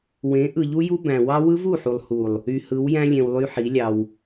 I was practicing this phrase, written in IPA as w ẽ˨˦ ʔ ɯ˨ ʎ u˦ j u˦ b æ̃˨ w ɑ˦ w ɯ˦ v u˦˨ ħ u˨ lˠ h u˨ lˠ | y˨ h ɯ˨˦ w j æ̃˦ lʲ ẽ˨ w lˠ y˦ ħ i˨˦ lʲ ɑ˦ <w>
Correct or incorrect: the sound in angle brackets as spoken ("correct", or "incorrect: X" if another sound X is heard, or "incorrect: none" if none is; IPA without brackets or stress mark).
correct